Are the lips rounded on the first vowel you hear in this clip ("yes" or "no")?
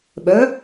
yes